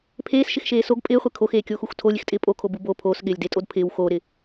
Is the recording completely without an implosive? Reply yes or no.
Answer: no